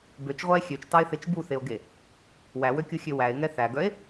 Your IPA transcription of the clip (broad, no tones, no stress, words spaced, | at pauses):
bøt͡ʃʁʷæe̯ xʲøt͡ʃtɑe̯θet͡ʃ buθeo̯ɡe | wæwøkʲuxʲø wæe̯ŋɛ θæɡœe̯